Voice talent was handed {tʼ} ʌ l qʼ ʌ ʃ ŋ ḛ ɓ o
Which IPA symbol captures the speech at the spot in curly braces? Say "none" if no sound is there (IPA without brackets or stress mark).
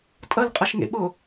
tʼ